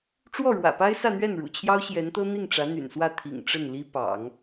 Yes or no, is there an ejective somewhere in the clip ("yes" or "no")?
no